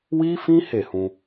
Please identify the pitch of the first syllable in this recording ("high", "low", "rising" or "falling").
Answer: high